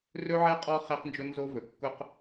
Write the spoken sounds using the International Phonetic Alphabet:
rɵ˦ʕɛ˦ qʼɔ˦ χɛ˦qnd͡ʒʊ˦nzo˦vɵ˨ kːʊ˦q

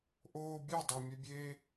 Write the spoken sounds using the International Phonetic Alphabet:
ʔoː bʲɛdˤemʲɛbʲeː

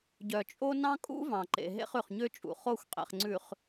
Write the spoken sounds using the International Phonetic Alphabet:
ɟœ˨t͡ʃʼo˦ nɑ̃˦kʼṵ˦vɑ̃˨ǃḛ˨ ɦḛ˦χʉ˨χ ɲø˦t͡ʃʼṵ˨χo˦˨xʷqʼḛ˨χ ŋ͡ǀʉ˨χ

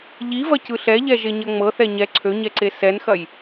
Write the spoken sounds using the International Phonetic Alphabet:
ʎivɐcɯ ɬɛʎɛʒeɲɐ ŋ͡mɤθɛ ɲɛ ǀʰøɲɛǀe sɛnxɐj

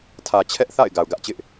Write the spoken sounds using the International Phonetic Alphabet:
tʰä˨t͡ɕʰɛ˦ʔθa̰˦˨ɪ̯ ɡa˨ʊ̯ɡä˦ʔt͡ɕɪ˦ʔ

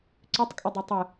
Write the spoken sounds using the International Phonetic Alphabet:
ǀʏtˤkʼʏdˤø tˤɪ

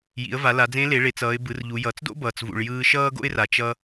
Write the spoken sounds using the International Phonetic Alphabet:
jḭ˩˧ə̯va˩˧ la˩˧d͡zẽ˧˥le˩˧ ɭe˩˧t͡s ʌː˩˧ɪ̯ bɯ˩˧rʎu˩˧ jʌ˩˧t͡sdo̰˥ bʌː˩t͡svṵ˩ɭ jɯː˧ʃʌː˥ ɡo̰˥ɪ̯ra˩ t͡ʃʌ˧

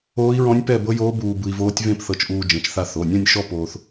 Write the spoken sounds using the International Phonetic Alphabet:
oː˦˥i̯ɹɔ̃˦˥nʲpɛ˥˧ bɤ˦˥joː˦˥ buː˧ bɯ˧i̯voː˦˥tʲ vẽ˥˧pθɤ˧t͡ʃʔuː˧ d͡ʒẽ˩˧˩t͡ʃθa˧ θo˩˧˩nʲɔ̃˥˧nʲ ʃɔ˥˧ poː˧θ

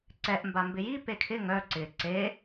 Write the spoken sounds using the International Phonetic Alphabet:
ǀɛʔ mbambɪji pekʰɪ ŋœ ǀɪ ǀe

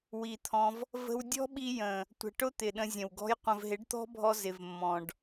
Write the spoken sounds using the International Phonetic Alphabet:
wi˨t̪ʰɔ̃˧v | və̤˧w dʲɔ̤˦ɓi˧ jə̃˨ | tʷə̤˨ʈʊ˦ t̪ɪ˨ɗə̃˧zʲə̃˨wɡɔ̤˦j qʷə̃˨vɦɪ˨˦ɖt̪ɔ̤˦bʱɔ˧ zɪ˨vmːɔ̃˨ɖ

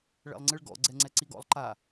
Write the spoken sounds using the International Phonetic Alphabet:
ɭɛ̰lˠŋ͡ǀɨɭɡɔ̰ ɡ͡ǀɛŋ͡ǀɛǀiɡɔ̰lˠ ǃa

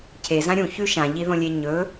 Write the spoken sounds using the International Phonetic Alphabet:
cʰezã ɾʲũçʉ ʃãʎiðõlʲe ɲɵ

